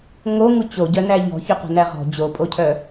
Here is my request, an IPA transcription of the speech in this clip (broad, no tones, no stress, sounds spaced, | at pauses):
ŋ o ŋ u t͡ɕ o ɟ œ n æ ʎ ɔ̤ ç œ q o̤ n æ ʁ ɔ̤ d͡ʑ o pʼ o cʰ œ